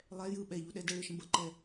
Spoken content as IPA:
lˠ ɛ j ɯ ɓ ɛ ʎ u ɗ ɛ d ə ɭ ɯ ʃ ə̃ b ə ǃ ɛ

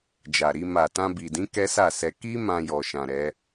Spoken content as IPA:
d͡ʒ a˨ ɾ i˧ m a˨ t ã˧ b i˨ d ĩ˨˦ k ɛ˦ s a˦˨ s ɛ˧ k i˦ m ã˧ j ɔ˨ ʃ ã˨ ɾ ɛ˨˦

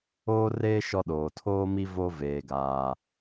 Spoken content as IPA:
oː˦ r eː˦ ʃ ɔ˦ ɗ oː˨ tʰ oː˦ m i˦ v o˦ v eː˨ ɡ aː˨

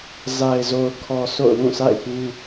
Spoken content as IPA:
z a˨ ɪ̯ z o˨ ʊ̯ kʰ ɔ˨ sʰ o̰˦˨ ʊ̯ w ũ˦˨ sʰ a̰˦˨ ɪ̯ p ũ˦

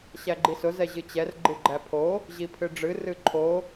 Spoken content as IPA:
ɕ æ ɡ͡ǃ i s ʊ z ɛ ʑ ɨ t͡ɕ ɛ r ɡ͡ǃ ɨ ɡ͡ǃ æ pʰ o | ʑ i pʰ ɨ ɖ͡ʐ ɨ r ɨ ǃʰ o

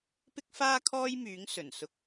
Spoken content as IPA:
p ɪ˥ k̚ f aː˥ kʰ ɔː˥ j m yː˨˥ ŋ s ɵ˨˩ n s ʊ˧ k̚

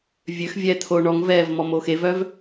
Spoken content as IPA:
vʲ ø x vʲ ɛː t̪ʰ oː ɳ ɔ ŋ v ɛː v m ɔ m o x e v œ v

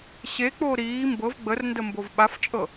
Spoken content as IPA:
ɕ e k͡p oː ɾ iː m b ɤ v ɡ͡b ə r n d ə m b o v ɓ a f t͡ʃʼ ɤ

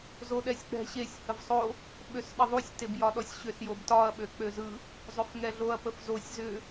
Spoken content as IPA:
z o ɗ ɛ sʲ k͡p ɛ̤ ɕ e sʲ h ə v sˤ o | ɓ ø s ɗ ə ðˤ u sʲ t e b j ɒ ɗ ɔ sʲ ɕ ʏ s j o b t ɒ ɐ̯ ɓ ø k͡p ø z ɯ | zˤ ʏ f ŋ ɛ ɮ o ɐ̯ p ə f z o sʲ z ʏ

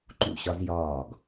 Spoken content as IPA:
ǃ ṵ˧˩ ɕ ɒ˧ z j ɒː˧˩ ɡ

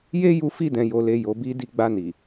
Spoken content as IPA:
j e˦ j u˧ f i˧ d ɛ̃˨ j o˨ l e˨ j o˨ b i˧ d i˧ ɡ͡b a˧ n i˨

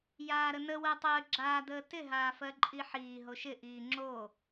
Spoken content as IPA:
j aː ɾ ə n ə w ɜ tˤ əː ɡ͡ǁ aː d əː t ɪ ɦ aː f ɜ ǃʼ i ħ iː ɦ o ʃ ɪ ʔ iː ŋ͡ǁ o

